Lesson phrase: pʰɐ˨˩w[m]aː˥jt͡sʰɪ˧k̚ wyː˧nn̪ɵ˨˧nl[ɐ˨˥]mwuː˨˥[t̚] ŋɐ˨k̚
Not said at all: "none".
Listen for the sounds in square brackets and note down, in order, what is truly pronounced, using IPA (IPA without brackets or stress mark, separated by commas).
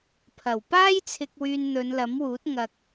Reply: p, ɐ˨˥, t̚